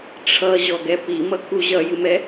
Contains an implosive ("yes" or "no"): no